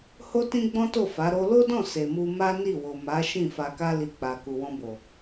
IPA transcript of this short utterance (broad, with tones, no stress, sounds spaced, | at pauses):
h o˦ t ĩ˦ ɡ͡b ɔ̃˦ t o˦˨ f a˨˦ ɾ o˦ l o˦ d ɔ̃˦˨ s e˨ m u˧ m a˦ n i˦˨ w o˨ m a˨˦ ʃ ĩ˦˨ f a˧ k a˦ l i˧ k͡p a˨ k u˨ w ɔ̃˧ b o˨